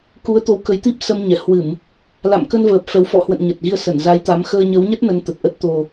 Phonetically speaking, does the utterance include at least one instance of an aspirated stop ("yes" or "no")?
no